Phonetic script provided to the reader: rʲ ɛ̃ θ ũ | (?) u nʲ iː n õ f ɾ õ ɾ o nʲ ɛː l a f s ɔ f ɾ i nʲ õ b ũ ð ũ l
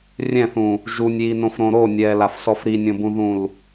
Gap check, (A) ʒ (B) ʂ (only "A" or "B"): A